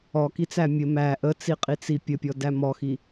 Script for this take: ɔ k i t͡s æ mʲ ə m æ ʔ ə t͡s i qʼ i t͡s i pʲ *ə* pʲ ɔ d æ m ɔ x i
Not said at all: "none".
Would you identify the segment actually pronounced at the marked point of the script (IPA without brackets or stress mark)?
ə